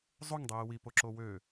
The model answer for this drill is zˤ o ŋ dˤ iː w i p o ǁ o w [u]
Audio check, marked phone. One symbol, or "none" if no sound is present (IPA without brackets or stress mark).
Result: ø